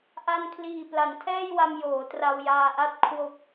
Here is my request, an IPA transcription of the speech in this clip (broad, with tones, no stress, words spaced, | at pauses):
ʔa˧nkʰliː˨˩ pla˩˦ntʰɛː˥˩jwa˧m joː˩˦tra˧wjaː˧ʔa˥˩t̚ kʰwo˨˩k̚